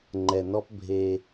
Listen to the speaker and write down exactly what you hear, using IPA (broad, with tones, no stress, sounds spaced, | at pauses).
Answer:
ŋ͡ǃ ɛ˨ n ɔ˦ p bʱ e˦